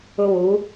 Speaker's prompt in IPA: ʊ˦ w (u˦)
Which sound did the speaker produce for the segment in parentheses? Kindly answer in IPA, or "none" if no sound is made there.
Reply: u˨˦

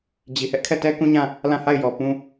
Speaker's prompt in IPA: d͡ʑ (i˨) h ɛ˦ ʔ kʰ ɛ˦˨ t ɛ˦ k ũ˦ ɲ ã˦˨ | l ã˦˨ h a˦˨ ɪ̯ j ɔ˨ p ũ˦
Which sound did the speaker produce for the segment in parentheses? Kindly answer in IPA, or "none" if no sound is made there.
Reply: i˨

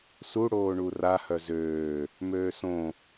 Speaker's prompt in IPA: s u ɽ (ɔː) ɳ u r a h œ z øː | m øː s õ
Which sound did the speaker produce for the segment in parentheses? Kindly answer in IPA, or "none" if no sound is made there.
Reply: oː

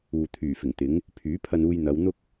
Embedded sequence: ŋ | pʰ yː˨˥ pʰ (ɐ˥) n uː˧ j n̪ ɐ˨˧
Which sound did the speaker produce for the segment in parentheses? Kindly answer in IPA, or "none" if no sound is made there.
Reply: ɐ˧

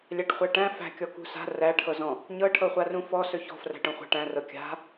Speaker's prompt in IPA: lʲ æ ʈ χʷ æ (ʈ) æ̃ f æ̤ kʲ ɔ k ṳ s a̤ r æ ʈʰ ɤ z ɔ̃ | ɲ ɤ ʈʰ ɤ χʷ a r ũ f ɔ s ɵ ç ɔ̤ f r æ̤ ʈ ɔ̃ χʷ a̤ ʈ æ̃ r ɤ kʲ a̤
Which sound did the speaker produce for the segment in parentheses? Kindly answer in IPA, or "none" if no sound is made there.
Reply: ʈ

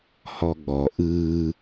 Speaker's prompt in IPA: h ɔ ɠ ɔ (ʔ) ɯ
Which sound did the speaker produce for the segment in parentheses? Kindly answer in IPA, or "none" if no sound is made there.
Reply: ʔ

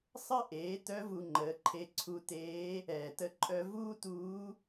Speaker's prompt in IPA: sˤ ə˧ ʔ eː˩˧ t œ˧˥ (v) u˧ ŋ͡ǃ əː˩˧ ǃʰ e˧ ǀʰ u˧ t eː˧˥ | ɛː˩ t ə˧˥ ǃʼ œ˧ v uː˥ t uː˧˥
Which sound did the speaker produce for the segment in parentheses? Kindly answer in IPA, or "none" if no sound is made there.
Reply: v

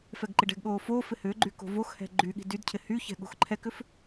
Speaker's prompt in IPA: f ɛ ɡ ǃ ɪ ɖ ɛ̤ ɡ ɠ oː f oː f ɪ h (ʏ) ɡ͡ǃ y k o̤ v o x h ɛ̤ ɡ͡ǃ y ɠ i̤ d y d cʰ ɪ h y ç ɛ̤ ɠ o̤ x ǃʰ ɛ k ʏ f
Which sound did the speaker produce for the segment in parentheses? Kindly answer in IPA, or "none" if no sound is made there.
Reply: ʏː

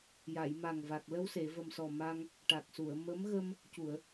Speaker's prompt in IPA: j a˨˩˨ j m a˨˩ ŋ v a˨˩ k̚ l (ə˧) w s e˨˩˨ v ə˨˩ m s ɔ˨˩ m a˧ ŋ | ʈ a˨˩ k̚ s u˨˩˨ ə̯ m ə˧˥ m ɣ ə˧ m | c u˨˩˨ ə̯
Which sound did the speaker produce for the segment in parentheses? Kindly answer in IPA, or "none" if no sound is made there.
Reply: ə˧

